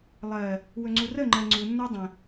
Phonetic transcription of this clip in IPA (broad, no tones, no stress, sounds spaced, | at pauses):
lˠ ɜ | w ɵ ŋ͡ǀ u r ə ŋ͡ǃ ɜ ŋ͡ǀ u nː ə˞ dˤ ə̃